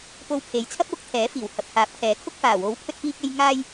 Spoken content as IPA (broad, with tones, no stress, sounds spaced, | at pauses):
p o˧ w pʰ e˨˧ j t͡sʰ ɐ˥ p̚ w ʊ˨˥ k̚ t̪ʰ ɛː˨˥ f iː˨˩ w h ɐ˨ p̚ h aː˨˥ p̚ kʰ ɛː˨˥ kʰ ʊ˧ k̚ f aː˨˩ w o˨˥ w pʰ ɵ˧ t̚ p iː˧ k̚ e˧ j ŋ aː˧ j